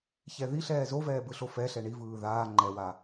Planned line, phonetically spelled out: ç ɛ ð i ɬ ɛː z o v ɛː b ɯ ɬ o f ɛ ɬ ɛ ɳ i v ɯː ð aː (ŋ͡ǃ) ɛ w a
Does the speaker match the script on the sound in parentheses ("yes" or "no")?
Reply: yes